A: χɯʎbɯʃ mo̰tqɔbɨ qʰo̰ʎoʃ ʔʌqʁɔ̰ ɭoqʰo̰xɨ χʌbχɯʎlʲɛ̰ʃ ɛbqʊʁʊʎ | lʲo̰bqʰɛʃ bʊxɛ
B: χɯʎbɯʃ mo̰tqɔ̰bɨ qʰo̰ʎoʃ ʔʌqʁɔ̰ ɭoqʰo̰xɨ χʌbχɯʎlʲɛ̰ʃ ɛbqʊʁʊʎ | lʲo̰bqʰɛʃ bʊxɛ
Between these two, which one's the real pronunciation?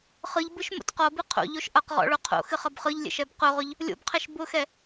A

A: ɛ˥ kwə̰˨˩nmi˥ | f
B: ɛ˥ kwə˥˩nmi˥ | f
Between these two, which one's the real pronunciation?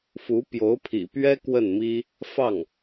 B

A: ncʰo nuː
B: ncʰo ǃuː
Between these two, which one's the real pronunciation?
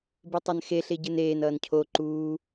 B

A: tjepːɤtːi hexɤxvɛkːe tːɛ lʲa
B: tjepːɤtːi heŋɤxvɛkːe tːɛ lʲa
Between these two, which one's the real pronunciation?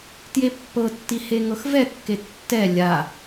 B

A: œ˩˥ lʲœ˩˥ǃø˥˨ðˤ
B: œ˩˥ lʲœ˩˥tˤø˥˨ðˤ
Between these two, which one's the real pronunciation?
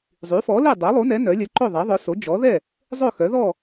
A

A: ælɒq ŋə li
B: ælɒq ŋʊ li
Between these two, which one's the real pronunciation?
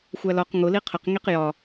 B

